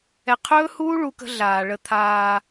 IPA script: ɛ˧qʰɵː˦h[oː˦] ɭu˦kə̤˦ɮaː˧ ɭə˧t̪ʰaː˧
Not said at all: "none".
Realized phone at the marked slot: uː˦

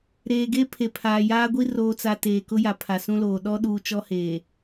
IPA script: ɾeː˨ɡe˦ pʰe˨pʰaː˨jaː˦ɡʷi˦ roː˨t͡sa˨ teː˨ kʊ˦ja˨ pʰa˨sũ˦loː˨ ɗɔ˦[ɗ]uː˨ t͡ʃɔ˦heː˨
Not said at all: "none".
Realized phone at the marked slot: ɗ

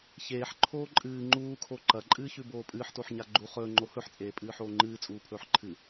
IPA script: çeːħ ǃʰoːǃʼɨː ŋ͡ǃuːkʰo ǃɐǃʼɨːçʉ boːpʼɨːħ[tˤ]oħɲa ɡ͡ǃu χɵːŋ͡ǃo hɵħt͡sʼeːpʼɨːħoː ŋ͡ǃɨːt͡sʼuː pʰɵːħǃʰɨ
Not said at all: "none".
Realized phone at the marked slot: t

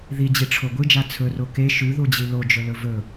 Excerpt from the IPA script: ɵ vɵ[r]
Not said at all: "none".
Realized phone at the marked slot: none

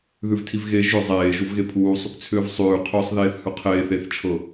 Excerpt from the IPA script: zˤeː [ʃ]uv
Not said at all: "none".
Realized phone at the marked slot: ʒ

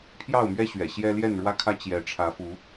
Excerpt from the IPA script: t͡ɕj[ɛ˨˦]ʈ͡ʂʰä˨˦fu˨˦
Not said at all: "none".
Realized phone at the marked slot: ɛ˨˦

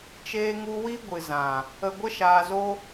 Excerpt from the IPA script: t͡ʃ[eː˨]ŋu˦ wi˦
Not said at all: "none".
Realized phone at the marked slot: eː˦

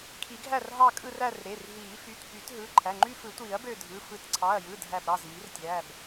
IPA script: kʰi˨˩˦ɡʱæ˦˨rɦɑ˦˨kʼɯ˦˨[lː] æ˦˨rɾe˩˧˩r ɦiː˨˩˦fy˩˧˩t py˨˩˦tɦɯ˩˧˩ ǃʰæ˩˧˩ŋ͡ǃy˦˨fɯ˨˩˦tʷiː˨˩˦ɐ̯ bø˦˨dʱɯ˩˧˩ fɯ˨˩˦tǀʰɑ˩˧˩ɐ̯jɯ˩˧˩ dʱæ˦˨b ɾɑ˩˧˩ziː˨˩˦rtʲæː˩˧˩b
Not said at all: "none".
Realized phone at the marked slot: r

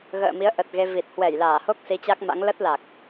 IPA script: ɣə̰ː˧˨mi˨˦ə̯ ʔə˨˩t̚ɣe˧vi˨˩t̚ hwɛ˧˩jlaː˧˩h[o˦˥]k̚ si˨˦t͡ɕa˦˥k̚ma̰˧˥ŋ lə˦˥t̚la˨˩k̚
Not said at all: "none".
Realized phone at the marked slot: o˦˥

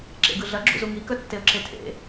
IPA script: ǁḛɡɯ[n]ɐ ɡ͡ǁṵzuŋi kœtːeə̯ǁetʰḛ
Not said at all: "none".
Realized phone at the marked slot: ɮ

